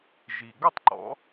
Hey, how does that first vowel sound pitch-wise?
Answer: low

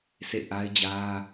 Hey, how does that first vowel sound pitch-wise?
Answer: falling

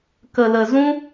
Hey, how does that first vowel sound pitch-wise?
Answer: low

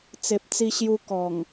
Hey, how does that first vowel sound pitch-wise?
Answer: low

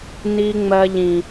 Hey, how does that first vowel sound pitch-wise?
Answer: low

